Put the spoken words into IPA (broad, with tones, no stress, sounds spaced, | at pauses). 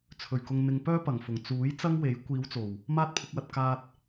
t͡sʰ ɵ˨˩ ɥ k ʊ˨ ŋ n̪ ɪ˨ ŋ p œː˥ p ɐ˨˩ ŋ f ʊ˨˩ ŋ t͡s uː˨˥ j t͡s ɐ˥ ŋ w e˨˥ j kʷ iː˨˧ w t͡s o˨˩ w | m aː˥ t̚ pʰ ʊ˧ k̚ w ɐ˧ t̚ k aː˧ t̚